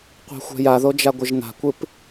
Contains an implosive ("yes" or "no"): no